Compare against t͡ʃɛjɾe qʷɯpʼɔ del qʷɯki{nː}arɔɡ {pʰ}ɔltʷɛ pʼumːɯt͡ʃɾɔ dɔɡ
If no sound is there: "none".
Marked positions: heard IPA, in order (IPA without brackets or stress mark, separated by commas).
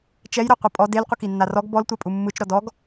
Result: nː, b